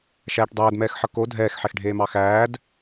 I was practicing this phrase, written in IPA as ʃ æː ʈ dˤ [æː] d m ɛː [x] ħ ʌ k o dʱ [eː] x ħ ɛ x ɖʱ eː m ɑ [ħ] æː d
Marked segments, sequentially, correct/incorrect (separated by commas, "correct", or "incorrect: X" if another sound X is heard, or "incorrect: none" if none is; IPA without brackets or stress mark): correct, correct, incorrect: ɛː, incorrect: x